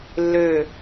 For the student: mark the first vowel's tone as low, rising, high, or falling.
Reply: falling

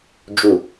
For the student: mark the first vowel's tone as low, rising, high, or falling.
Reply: low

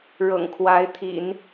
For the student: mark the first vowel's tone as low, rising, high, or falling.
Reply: low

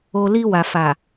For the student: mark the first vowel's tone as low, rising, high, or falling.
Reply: low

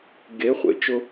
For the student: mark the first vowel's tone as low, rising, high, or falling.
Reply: rising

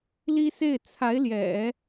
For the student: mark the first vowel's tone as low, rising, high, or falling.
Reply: high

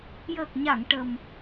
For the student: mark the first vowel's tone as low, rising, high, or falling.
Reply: low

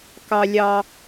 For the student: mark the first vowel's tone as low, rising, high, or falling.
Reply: high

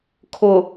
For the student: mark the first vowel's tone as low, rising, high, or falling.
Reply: low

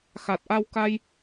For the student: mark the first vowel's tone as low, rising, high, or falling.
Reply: low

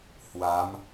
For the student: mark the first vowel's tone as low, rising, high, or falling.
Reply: rising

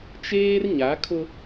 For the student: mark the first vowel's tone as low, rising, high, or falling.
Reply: high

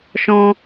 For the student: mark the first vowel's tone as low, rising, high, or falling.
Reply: high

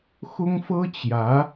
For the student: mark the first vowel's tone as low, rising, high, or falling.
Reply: high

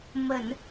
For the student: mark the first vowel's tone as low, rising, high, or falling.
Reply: low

